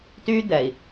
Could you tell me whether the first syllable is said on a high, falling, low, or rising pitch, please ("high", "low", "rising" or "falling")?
high